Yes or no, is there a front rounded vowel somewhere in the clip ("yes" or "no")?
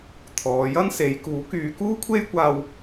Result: yes